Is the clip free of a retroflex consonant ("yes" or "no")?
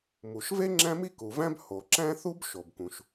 yes